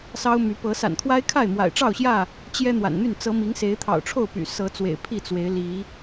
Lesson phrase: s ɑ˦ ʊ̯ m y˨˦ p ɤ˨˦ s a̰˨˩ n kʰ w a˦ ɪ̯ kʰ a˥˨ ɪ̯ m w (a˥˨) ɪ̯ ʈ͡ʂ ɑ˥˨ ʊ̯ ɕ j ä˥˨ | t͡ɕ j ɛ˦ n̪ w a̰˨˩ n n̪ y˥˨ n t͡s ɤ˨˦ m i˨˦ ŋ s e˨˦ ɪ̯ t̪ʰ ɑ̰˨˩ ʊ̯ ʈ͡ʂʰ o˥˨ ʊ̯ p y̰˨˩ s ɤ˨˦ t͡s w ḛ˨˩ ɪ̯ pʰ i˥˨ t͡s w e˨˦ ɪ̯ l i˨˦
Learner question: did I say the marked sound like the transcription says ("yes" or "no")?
no